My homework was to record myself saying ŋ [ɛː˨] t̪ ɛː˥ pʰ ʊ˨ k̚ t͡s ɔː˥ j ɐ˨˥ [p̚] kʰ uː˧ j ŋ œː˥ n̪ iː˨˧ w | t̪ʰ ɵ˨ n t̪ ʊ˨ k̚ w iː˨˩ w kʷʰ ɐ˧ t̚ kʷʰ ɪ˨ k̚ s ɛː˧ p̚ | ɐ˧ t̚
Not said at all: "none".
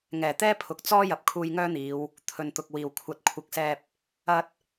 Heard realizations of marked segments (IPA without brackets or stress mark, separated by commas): ɛː˨˩, p̚